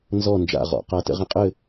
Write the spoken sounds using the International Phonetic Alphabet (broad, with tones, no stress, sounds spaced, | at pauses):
n z ɔ˦˨ n d͡ʒ a̰˦˨ ʁ ɔ̰˨ q a˦ t ə̰˦ ʁ ə̃˦ qʼ ɘ˦˨